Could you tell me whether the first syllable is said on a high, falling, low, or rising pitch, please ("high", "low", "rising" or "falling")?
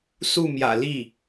falling